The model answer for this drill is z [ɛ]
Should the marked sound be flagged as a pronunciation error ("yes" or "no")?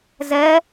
no